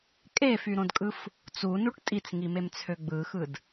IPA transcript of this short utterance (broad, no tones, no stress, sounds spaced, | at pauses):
kʼ e f y ɾ õ d kʼ ɯ f | t͡s u n u ʈ tʼ i t͡s ŋ i m e m t͡sʰ ø ɡ͡b ɯ x ɯ d